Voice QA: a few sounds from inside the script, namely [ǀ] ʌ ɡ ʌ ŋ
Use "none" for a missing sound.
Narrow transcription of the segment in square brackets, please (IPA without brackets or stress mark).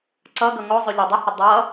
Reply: ǀ